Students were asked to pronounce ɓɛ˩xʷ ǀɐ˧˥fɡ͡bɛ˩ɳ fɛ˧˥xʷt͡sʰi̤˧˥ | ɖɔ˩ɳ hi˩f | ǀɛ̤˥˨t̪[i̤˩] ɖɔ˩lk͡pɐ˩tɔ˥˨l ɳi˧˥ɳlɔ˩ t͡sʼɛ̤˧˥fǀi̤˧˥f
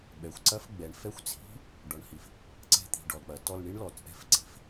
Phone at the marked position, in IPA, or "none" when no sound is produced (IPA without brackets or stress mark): i̤˩